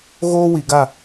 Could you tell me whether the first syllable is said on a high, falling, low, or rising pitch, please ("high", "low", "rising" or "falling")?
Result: high